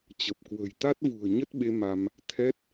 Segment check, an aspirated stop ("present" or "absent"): present